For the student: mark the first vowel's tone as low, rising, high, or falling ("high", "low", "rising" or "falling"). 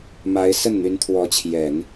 rising